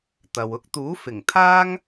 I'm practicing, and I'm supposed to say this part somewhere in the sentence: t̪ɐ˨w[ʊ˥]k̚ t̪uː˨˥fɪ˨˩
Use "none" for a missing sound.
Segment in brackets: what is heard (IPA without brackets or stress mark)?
ʊ˥